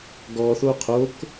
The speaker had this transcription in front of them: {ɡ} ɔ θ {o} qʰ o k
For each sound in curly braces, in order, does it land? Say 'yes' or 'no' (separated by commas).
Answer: yes, yes